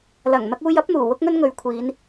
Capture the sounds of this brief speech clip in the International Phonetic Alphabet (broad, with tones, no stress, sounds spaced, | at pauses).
l ɐ˨˩ ŋ n̪ ɐ˧ k̚ uː˧ j ɐ˥ p̚ n̪ uː˨˩ w ʊ˥ k̚ ŋ ɵ˥ n ŋ ɵ˨˧ ɥ kʷʰ iː˨˧ n